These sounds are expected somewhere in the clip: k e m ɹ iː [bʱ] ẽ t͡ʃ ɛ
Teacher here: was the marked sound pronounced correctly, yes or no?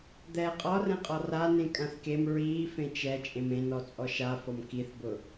no